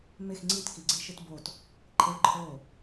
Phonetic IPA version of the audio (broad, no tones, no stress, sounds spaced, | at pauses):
m e x ŋ͡ǀ i t k i ɡ͡ǀ i ʃ ɨ t b o t | ǃʰ e ǃʰ o